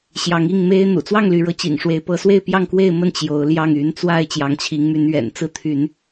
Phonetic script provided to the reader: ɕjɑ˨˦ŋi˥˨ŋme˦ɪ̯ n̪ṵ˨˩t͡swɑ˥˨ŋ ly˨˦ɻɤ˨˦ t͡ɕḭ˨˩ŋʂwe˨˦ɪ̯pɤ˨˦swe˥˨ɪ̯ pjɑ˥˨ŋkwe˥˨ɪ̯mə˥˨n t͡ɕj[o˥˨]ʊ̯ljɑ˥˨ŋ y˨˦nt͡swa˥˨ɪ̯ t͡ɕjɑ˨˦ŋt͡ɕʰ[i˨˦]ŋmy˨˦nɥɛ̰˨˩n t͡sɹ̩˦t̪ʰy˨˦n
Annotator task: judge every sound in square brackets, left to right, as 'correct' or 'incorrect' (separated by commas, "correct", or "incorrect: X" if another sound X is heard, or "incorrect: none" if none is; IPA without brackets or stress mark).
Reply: incorrect: o˨˦, correct